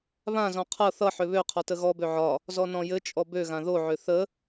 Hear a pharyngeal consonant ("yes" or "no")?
yes